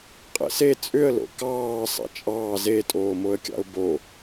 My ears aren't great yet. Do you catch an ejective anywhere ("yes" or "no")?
yes